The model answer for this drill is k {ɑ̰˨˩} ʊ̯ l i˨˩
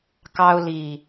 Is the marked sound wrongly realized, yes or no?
yes